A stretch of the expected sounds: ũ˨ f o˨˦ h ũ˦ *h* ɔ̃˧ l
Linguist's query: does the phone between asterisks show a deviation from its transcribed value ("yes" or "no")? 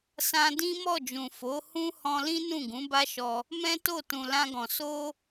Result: no